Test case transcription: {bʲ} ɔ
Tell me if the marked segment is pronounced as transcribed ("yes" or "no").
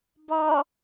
no